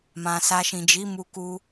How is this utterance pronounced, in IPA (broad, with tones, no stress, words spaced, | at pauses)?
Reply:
mã˨sa˧ ʃĩ˨d͡ʒi˨˦mu˧ku˧